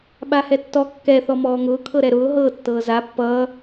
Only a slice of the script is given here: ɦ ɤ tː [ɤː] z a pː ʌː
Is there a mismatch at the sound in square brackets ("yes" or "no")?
no